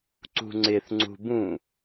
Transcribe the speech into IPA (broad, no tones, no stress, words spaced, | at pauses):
ǀṳŋ͡ǀɪθ ŋ͡ǀṳbũ